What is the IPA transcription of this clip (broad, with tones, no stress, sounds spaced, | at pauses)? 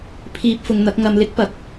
pʰ iː˧ p̚ f ʊ˨˧ ŋ n̪ ɐ˨˥ k̚ ŋ ɐ˧ m l ɪ˥ k̚ p ɐ˨˥ k̚